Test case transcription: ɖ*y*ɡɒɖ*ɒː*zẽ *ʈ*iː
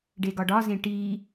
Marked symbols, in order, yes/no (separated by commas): no, no, yes